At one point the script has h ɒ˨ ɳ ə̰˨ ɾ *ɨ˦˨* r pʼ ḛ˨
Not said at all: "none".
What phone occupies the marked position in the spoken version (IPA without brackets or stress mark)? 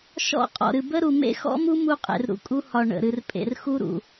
ɨ˨